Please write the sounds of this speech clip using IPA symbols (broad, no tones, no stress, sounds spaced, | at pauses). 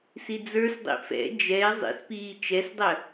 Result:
s i d͡z ə˞ s dˤ ḭ f ɛ̰ d͡ʒ ɛ ɪ̯ zˤ ḭ s p iː t͡ʃ ɛ s dˤ ə